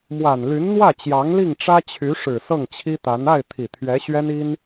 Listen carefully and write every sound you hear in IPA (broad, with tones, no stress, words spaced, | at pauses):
mwa˨˩n ly˧˥nn̪wä˥˩t͡ɕjɑ˧˥ŋ li˥˩ŋʈ͡ʂä˥t͡ɕʰy˧˥ ʂɻ̩˨˩ sɤ˥˩ŋt͡ɕʰi˥t̪a˧˥n a˥˩ɪ̯ t̪ʰi˨˩t̪ʰɥɛ˧˥ɕɥɛ˥ni˥n